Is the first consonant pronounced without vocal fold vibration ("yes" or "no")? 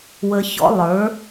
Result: no